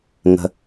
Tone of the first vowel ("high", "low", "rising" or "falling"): low